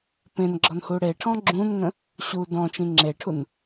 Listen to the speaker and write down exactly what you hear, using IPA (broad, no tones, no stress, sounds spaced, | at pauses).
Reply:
p ẽ n ɡ͡ǁ ɔ n h u ɽ e ʈʰ ɔ̃ ɡ͡ǁ ũ n ŋ ə̃ | ɕ u d ɔ̃ t͡ʃ ĩ ŋ͡ǁ e ʈʰ u n